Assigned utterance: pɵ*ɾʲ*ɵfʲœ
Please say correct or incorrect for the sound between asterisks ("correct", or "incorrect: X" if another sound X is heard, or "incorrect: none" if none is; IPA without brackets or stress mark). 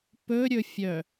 correct